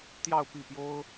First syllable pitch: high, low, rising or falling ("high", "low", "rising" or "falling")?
falling